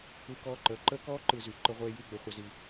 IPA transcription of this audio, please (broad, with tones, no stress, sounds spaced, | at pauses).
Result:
ɯ˧ k ɔː˧ ǃ əː˨ ǃ əː˦ k ɔː˦ ǃ ɯ˨ z y˨ ǃ ə˧ ʁʷ eː˧ j y˦˨ ɡ͡b ə˨ χʷ ə˨ z i˨